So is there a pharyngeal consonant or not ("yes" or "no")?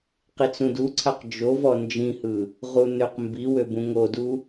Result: no